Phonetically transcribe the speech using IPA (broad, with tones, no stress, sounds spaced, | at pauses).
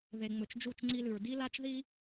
ð e˨ ŋ͡m ɵ˨ t͡ʃ d͡ʒ u˦˨ t͡ʃ ŋ͡ǀ i˧ l ʉ˨ ɹ d i˧ l a˧ t͡ʃ ð i˧